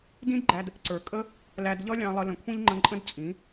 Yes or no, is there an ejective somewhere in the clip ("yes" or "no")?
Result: yes